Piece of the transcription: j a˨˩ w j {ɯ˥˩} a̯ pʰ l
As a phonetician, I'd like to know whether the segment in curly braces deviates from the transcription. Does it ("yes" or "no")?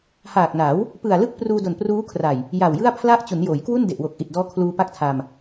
no